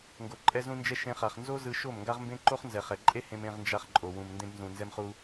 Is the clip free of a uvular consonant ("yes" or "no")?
no